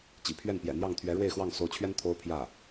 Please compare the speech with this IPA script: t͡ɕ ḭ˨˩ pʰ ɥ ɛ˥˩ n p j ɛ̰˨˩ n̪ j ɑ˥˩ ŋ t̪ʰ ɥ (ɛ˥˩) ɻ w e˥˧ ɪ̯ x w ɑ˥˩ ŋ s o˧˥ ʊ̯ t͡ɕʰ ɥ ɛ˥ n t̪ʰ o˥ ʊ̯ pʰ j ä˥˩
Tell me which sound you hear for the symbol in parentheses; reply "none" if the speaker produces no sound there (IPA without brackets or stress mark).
ɛ˧˥